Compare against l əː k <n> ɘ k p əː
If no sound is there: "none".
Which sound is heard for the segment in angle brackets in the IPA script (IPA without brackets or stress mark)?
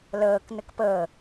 n